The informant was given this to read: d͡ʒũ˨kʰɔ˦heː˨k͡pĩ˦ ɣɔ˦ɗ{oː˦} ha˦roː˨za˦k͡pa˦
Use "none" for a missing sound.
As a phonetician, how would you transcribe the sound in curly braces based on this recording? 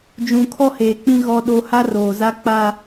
o˦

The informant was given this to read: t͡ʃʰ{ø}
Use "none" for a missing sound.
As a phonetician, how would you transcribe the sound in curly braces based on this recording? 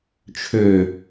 ø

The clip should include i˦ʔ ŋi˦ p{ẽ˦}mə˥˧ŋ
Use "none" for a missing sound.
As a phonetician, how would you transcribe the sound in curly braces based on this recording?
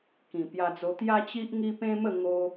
ẽ˦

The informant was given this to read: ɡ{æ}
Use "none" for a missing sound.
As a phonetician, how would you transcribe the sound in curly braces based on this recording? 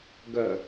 œ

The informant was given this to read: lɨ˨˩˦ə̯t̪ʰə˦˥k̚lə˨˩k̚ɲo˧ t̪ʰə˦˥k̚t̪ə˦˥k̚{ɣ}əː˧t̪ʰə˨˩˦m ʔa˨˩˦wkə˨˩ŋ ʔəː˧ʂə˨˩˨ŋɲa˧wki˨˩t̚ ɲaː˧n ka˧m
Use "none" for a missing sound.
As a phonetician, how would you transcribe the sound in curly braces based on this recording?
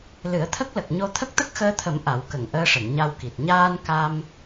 x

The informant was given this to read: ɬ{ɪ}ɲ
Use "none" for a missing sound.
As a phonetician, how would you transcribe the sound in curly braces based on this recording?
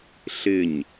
ɪ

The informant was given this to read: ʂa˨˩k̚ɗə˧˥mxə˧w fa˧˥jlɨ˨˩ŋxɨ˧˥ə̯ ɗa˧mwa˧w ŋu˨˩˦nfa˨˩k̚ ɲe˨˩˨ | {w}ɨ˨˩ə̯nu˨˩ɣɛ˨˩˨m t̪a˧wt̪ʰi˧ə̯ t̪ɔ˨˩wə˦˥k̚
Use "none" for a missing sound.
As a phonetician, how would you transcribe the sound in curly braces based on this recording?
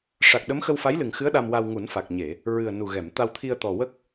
ɹ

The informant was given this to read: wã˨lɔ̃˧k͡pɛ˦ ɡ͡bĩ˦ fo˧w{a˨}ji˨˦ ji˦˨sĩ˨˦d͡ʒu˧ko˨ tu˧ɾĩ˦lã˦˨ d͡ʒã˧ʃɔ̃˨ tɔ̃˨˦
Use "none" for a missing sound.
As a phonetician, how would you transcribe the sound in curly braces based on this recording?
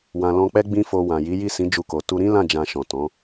ã˨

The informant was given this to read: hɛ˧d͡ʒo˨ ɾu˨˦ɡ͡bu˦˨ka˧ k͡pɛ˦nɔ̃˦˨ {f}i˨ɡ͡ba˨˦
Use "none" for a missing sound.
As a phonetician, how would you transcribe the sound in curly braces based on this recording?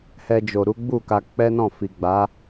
f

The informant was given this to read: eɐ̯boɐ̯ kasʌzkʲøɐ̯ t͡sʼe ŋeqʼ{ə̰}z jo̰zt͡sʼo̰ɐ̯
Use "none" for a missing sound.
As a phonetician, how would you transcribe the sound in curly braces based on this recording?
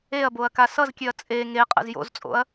ə̰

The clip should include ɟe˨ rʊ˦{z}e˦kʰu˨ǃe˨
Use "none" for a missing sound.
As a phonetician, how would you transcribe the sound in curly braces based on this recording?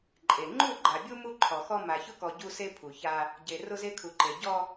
z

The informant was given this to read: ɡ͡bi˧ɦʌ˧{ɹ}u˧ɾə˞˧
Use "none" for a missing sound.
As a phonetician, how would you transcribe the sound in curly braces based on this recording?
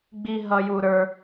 j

